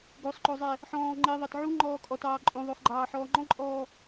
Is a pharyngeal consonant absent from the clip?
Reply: no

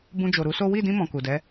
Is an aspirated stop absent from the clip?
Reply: yes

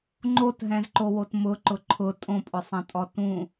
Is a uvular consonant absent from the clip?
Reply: yes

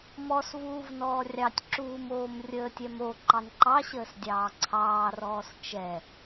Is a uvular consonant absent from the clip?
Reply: yes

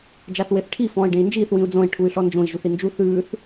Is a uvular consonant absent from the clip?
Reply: yes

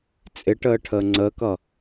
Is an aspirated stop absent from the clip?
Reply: no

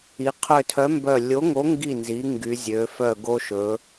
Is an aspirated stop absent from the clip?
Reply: no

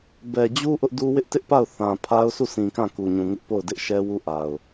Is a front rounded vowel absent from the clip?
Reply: yes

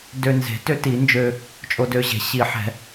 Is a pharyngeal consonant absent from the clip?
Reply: no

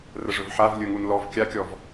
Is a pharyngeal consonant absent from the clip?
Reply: no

